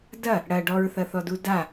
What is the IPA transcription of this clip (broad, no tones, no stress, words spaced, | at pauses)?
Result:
dɐ | ɽɐ ɖɔɹθɐθɔdu da